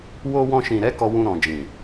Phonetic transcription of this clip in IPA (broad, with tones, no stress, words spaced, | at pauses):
wo˧wɔ̃˧ʃĩ˨ɾɛ˨˦ kɔ˧wũ˧ɾɔ̃˨ d͡ʒĩ˨